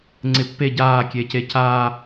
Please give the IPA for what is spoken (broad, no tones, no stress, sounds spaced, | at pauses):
ŋ͡ǀ ɪ pː e ɟ aː kʲ eː c e c aː